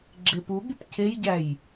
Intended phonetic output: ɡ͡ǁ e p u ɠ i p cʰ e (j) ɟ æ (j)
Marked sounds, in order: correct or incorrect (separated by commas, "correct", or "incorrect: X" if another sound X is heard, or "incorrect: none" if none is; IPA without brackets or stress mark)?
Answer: correct, correct